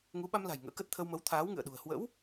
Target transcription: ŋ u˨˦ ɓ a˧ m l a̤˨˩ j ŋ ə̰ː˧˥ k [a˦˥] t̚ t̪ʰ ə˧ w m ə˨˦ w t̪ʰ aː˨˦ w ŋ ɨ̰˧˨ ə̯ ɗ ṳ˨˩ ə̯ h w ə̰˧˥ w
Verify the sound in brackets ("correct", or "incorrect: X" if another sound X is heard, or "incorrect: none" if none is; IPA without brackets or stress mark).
incorrect: ə˦˥